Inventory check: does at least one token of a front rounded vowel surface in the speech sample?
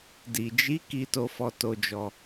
no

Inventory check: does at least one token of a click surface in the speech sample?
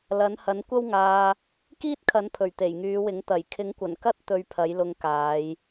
no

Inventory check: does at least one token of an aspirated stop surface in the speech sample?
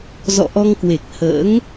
no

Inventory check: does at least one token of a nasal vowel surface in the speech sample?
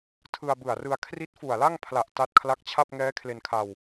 no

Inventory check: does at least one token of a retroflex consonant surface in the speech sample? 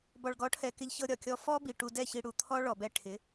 yes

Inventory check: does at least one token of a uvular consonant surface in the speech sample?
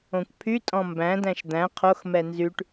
yes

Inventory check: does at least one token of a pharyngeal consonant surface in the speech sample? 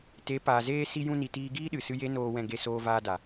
no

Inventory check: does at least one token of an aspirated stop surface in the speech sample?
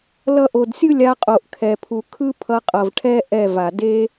yes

